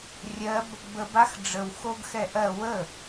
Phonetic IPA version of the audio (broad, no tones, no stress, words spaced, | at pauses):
rʲɜb | bəb axɖ͡ʐəw xoɡxɛʔɜ wə